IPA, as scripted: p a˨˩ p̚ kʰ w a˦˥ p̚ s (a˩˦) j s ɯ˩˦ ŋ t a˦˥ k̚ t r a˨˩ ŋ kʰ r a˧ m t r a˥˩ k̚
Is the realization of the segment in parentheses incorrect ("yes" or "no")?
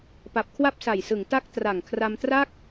yes